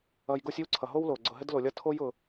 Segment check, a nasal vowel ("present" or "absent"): absent